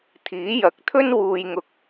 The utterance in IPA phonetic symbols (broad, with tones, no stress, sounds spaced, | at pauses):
t̪ʰ iː˨˥ j ɐ˨˥ k̚ t̪ʰ ɵ˥ n w uː˧ j ŋ ʊ˧ k̚